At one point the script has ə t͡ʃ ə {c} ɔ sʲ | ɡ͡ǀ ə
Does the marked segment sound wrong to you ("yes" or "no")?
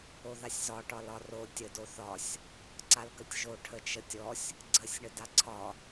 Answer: yes